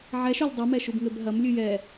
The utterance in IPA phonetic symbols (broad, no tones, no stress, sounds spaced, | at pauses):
ʕ ɛ ʃ o lʲ dˤ i m ɛ ʃ u b ŋ ɘ b ɦ ɐ m lʲ ɨ j ɛ